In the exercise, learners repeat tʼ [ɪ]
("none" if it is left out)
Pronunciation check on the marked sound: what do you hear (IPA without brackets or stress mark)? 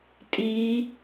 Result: i